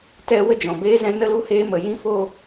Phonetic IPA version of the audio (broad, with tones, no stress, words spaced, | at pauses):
tɛ˧ wə˦d͡ʒɔ̃˨beː˦zɛ̃˦ nə˦lu˦heː˦ mə˧ jĩ˦fo˦